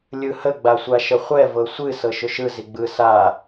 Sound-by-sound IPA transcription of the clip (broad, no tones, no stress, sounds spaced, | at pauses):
lʲ ɯ h ə ɡ͡b a sʷ a ʃ ə χʷ ɛ v ɤ sʷ ɨ s ɤ ʃ ʏ ʃ ɯ z i ɡ͡b ɯ s a